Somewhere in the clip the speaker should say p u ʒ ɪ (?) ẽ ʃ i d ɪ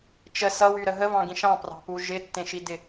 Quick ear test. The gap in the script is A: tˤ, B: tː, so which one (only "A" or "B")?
B